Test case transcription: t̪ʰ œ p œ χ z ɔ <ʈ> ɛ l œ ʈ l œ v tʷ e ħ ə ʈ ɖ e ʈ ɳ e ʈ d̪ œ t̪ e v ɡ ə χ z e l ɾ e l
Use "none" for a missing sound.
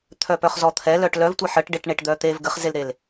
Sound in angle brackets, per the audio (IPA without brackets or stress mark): t̪ʰ